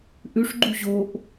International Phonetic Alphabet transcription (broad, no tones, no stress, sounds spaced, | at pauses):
ʔ ʉ ʂ ɡ͡ǃ u ʑ o ʔ